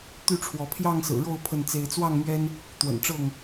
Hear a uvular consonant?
no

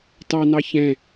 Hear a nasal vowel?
yes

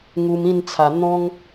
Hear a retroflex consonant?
no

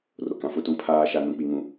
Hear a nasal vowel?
yes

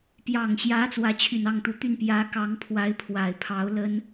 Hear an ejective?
no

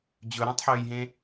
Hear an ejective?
no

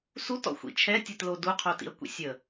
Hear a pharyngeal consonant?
no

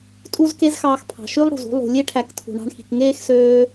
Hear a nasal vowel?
no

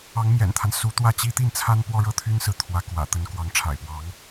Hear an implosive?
no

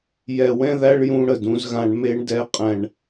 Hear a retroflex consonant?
yes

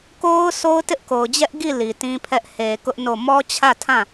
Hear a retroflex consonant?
no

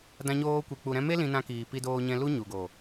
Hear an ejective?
no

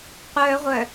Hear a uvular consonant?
yes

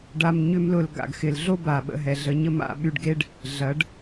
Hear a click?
no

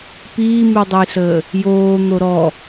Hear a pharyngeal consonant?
no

